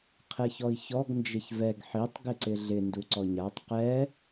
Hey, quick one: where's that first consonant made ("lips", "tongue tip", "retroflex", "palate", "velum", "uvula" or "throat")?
uvula